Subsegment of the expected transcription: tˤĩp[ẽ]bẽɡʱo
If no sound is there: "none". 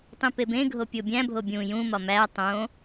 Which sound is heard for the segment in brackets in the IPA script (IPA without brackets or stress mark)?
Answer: e